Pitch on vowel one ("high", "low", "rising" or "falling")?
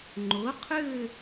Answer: rising